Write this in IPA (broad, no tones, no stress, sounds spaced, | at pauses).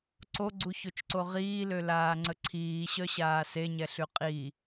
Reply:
ǀ o ɡ͡ǀ u ç o t͡ʃ ǀ o ʁ iː l ø l aː ŋ͡ǀ ə ǀʰ iː ɕ œ ɕ aː s e ɲ ɛ ɬ y qʼ i